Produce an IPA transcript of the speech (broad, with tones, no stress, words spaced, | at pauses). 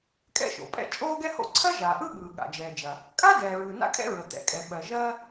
kʼɛ̰˥ʃo̰˩pʼɛ̰˥ t͡ʃʼoː˥ɡɛ˥ho̰˥ ǀʰɜ˥ʒaː˩ʔɯ˥ ɠɯː˩ɠa̰˩d͡ʒɛː˩d͡ʒɐ˩ | kʼa˥ dɛː˩ɹɯ˩na̰˥kʼɛ̰˥ ɹə˩t̪ɛ̰˩kʼɛ˩ ɓɜ˩ʒɜ˥